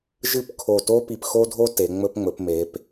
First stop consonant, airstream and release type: plain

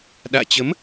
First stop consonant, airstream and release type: implosive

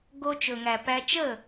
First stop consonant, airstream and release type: plain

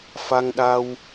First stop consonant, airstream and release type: implosive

